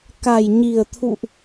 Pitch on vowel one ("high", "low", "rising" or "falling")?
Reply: low